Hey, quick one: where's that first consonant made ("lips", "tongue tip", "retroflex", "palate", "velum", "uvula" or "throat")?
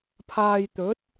lips